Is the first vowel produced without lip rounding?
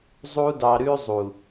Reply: no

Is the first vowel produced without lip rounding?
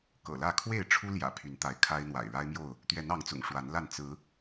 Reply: yes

